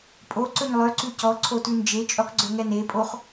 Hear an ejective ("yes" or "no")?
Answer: yes